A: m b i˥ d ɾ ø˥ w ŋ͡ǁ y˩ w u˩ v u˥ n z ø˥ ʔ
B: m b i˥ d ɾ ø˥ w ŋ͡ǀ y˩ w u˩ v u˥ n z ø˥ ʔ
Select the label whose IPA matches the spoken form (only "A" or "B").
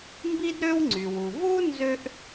B